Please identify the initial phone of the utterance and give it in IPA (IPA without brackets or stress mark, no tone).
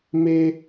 m